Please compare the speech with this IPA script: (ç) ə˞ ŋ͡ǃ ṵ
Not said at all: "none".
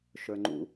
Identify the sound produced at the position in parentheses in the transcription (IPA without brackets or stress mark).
ʃ